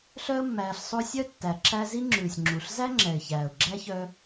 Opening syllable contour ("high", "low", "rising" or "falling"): high